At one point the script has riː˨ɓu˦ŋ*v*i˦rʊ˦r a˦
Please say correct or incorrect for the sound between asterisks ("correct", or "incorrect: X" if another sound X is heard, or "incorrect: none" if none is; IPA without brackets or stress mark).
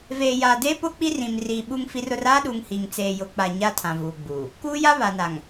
incorrect: f